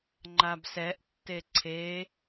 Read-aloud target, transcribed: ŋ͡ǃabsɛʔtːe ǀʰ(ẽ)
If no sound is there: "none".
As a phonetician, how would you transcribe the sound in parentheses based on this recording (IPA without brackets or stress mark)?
e